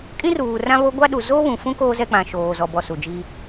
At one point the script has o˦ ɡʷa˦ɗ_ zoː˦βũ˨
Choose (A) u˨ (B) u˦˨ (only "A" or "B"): A